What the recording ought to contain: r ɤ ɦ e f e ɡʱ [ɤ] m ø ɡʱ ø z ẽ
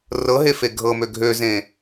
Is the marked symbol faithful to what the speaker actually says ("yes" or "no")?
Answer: yes